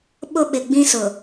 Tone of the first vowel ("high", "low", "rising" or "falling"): high